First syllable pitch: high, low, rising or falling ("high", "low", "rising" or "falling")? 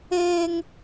high